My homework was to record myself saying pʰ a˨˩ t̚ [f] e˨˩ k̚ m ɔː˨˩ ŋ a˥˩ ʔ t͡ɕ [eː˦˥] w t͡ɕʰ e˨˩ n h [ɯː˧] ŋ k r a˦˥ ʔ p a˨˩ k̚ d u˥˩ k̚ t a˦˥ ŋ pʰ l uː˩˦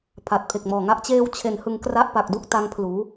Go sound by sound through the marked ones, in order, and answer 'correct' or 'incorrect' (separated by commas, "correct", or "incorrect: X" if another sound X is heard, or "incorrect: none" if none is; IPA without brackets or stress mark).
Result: incorrect: pʰ, correct, incorrect: ɯ˧